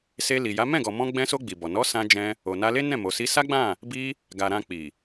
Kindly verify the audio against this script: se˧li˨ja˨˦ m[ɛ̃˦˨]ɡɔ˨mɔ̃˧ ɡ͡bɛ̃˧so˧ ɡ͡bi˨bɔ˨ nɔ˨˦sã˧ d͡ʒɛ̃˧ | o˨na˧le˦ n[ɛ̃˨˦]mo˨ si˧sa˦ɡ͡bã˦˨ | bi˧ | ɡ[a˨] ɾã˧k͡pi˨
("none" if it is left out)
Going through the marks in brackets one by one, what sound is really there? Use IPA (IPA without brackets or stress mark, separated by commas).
ɛ̃˦˨, ɛ̃˦˨, a˨